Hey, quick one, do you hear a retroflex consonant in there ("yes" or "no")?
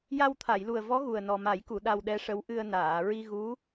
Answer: yes